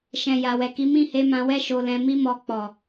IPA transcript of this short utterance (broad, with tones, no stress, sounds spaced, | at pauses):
ʃ ɛ̃˨ j a˨ w ɛ˨ k i˨˦ m ĩ˦˨ h e˧ m ã˧ w ɛ˦ ʃ o˧ l ɛ̃˧ m i˦ m ɔ˧ k͡p ɔ˨